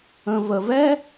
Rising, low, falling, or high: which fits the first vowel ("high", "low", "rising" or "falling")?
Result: low